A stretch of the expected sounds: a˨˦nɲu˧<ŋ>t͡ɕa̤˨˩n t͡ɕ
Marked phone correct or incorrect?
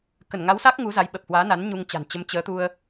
correct